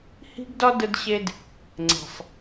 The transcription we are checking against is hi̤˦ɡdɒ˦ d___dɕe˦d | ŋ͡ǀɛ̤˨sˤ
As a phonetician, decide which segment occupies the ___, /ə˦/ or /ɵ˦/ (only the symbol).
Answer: ə˦